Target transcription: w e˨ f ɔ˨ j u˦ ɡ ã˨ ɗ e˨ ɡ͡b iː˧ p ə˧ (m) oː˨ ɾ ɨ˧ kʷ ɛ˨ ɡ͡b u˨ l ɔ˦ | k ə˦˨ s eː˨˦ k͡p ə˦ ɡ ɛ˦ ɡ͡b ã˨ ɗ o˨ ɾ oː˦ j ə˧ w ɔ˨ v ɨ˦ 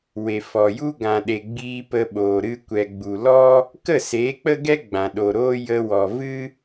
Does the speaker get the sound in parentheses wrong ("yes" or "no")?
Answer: yes